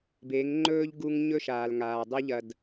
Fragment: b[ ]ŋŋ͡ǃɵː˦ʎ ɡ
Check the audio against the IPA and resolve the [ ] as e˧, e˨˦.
e˨˦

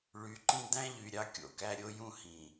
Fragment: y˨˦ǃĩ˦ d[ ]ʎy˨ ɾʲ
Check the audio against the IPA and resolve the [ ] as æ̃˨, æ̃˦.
æ̃˦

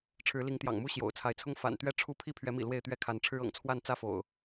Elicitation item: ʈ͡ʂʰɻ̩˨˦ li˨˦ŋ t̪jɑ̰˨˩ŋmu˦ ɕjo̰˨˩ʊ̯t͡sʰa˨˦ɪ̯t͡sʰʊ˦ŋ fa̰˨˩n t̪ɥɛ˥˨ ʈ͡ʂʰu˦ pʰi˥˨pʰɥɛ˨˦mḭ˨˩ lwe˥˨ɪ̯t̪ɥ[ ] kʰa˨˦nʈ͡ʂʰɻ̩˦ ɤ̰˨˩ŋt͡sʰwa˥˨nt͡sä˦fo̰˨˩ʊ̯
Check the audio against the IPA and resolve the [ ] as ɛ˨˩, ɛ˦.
ɛ˦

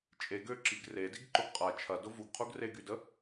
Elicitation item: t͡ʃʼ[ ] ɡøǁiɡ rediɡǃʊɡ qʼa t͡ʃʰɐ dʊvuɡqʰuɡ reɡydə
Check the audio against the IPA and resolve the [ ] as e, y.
e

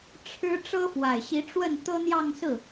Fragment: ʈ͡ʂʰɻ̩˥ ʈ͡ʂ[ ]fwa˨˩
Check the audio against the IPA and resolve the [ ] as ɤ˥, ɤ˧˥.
ɤ˥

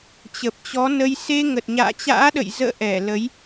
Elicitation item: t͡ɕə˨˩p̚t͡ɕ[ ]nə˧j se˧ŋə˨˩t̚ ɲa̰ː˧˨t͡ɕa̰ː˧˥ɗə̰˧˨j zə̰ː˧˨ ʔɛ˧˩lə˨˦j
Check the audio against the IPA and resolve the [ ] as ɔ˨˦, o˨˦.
ɔ˨˦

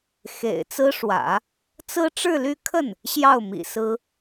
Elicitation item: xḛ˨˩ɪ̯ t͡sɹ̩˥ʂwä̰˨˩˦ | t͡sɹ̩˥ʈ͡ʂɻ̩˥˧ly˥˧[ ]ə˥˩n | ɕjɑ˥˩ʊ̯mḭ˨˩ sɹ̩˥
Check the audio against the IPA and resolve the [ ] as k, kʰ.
kʰ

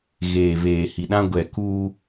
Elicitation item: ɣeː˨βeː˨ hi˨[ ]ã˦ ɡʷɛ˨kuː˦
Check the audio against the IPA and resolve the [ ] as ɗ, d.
ɗ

